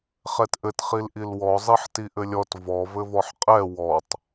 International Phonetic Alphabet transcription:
χɛtʔɘt χilʔilwɔ zˤiħtiʔɘlʲɔt vɔ vɘvɔħqʼɛ wɔtˤ

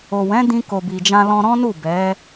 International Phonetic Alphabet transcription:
o˨wɛ̃˨˦ dĩ˧ko˨bi˨d͡ʒã˧ lɔ̃˧ɾɔ̃˦nu˦˨ bɛ˨˦

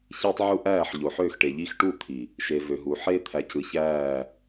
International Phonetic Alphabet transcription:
çiː˦tˤ ʕu˦ ʔæː˦˨ħ ʎo˨ħøː˦˨xʈe˨ʎiː˦x ʈu˦˨t̪ʰi˨ | ʃe˨vø˨ɦu˨ ħeː˦t̪ʰæ˨cɯ˨çæː˦˨

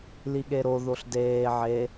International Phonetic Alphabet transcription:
liɠeɾo ðoɬdeː ʕe

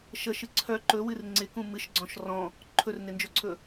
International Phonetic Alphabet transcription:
ʃəʃɨ ǀʰœ ǃɵwɨr ŋ͡ǀɪkũ mɨʃɡ͡ǀɔ̃ʃ rɔ̃ | ǃʰɵrnɪnd͡ʒɵǀʰɵ

